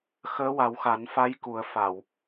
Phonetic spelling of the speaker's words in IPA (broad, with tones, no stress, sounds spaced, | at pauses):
x əː˧˥ w a˨˩˦ w x a˨˩˦ n f a˧˥ j k u˨˩˦ ə̯ f a˨˩˨ w